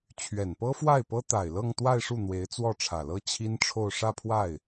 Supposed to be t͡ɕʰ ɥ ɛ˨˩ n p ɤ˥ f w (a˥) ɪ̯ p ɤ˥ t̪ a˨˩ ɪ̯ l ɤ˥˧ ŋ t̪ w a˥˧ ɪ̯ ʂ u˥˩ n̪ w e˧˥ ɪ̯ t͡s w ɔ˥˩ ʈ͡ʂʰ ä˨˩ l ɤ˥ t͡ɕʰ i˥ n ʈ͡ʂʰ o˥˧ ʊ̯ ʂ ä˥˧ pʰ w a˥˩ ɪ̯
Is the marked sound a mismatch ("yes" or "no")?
yes